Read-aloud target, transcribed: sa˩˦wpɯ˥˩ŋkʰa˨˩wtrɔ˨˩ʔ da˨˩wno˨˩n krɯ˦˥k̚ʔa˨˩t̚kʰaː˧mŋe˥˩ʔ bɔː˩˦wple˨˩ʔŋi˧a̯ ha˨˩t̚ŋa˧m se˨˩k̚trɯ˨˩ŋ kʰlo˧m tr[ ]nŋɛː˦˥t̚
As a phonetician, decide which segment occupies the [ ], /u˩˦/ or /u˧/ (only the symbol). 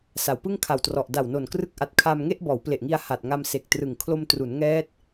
u˩˦